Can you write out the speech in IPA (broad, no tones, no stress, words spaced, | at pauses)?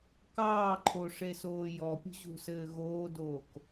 kɑːǃʰoʂesoː jɔpʲṳʑṳsɘː ɣoːdoːk